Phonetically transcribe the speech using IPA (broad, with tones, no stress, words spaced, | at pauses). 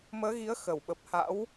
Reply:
məː˨˦ɣi˨˦ə̯ xə˧˩wɓə˨˩p̚ ha̰˧˥w